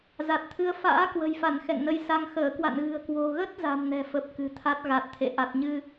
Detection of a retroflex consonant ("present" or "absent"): absent